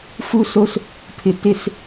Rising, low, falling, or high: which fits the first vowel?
high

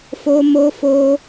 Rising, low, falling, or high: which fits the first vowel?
high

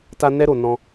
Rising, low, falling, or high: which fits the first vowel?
high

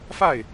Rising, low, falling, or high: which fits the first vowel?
falling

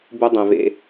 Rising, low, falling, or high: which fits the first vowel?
high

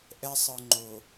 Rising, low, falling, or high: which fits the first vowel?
high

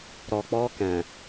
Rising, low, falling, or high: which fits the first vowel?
low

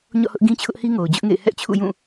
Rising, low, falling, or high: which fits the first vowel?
falling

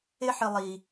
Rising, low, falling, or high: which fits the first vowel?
high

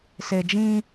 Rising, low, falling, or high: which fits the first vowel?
low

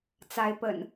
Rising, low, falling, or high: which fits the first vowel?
rising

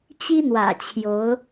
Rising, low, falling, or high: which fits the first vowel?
high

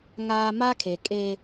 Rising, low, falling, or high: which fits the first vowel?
high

